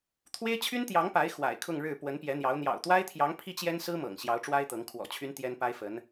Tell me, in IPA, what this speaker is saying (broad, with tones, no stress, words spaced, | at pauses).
t̪ʰwe˥ɪ̯t͡ɕʰy˥nt̪jɑ˧˥ŋpa˧˥ɪ̯ xwa̰˨˩ɪ̯kʰʊ˥˧ŋɻɻ̩˥˩ pwə˧˥npjɛ˧˥n̪jɑ˧˥ʊ̯ n̪jɑ̰˨˩ʊ̯t̪wa˥ɪ̯t̪ʰjɑ˧˥ŋ pʰi˥t͡ɕjɛ˥nsɹ̩˥mɤ̰˨˩ŋ ɕjɑ˧˥ʊ̯ʈ͡ʂwa˥ɪ̯t̪ɤ˧˥ŋ kʰwɔ̰˨˩t͡ɕʰy˧˥n t̪jɛ˥npa˥ɪ̯fə˧˥n